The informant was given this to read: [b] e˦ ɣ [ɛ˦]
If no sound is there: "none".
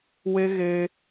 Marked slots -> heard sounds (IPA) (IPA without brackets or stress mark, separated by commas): w, e˦